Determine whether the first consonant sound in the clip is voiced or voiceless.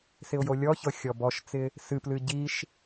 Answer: voiceless